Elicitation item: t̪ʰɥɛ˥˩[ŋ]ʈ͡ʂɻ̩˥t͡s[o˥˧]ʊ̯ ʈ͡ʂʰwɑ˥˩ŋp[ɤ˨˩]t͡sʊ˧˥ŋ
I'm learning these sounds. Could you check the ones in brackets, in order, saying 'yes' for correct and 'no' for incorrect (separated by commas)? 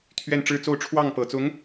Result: no, yes, yes